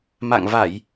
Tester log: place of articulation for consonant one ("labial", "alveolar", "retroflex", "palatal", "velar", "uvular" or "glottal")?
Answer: labial